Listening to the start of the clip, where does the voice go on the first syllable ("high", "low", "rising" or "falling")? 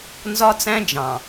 high